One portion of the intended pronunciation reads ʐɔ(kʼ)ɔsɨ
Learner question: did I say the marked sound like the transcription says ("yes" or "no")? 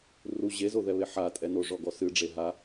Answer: no